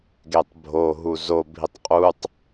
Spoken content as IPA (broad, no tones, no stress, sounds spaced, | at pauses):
ɡ e tˤ bʱ o ɦ u z o bʱ i tˤ qʼ u tˤ